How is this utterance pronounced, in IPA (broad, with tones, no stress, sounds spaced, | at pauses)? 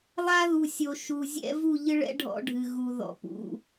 lˠ a˦ ð u˨ sʲ o˨ ʃ u˨ zʲ ɛ̰˦ v u˦˨ ʎ ɨ˦ ɭ ɛ̰˦ ɖʱ ɔ̰˦ ɖʱ ɨ˨ ɣ u˨ ð ɔ̰˨ p ṵ˨